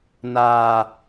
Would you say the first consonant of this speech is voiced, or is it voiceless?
voiced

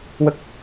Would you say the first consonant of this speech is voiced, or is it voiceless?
voiced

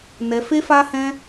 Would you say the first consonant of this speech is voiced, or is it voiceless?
voiced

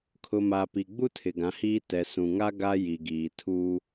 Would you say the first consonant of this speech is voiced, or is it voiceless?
voiceless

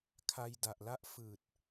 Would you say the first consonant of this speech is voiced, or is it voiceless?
voiceless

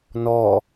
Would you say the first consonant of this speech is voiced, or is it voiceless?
voiced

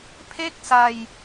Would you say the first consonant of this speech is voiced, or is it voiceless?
voiceless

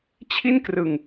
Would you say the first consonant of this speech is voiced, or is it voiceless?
voiceless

